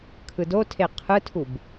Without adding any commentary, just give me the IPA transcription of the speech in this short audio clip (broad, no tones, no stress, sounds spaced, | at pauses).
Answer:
kʰ ɯ d o tʰ e qʰ ɯ tʰ u b